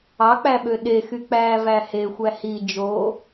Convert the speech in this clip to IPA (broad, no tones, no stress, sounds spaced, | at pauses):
ɑ k͡p æ ɓ ø ɗ e x y k͡p æː v æ h e xʷ æ h i d͡ʒ oː